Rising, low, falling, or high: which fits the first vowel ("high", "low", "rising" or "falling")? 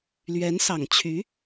rising